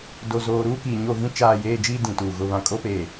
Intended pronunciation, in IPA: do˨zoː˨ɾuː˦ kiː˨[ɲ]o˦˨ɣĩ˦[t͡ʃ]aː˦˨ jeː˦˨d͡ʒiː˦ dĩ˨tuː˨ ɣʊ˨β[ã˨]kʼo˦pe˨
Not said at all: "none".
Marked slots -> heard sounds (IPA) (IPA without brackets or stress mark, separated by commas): ɲ, t͡ʃ, ã˨